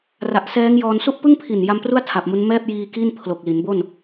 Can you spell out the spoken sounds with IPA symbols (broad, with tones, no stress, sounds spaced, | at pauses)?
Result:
r a˨˩ ʔ s ɛː˦˥ ŋ j ɔː˧ n s u˥˩ ʔ p ɯ˥˩ ŋ pʰ i˨˩ n j a˧ m p r u˥˩ a̯ tʰ a˨˩ p̚ m u˦˥ n m ɛː˥˩ p̚ j iː˧ k i˥˩ n pʰ l o˨˩ k̚ l i˩˦ n b o˥˩ n